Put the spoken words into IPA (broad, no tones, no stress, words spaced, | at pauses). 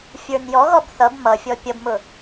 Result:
fʲə˞njɔɣɔb θʌb mʌfʲɔ pʲʌbmʊ